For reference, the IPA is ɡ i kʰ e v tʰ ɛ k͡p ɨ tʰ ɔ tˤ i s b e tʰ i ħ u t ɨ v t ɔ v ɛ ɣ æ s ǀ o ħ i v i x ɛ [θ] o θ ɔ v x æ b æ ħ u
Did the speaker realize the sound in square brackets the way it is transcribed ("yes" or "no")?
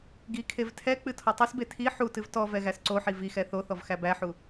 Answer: yes